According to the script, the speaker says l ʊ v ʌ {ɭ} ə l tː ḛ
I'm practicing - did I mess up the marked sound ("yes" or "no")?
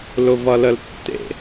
yes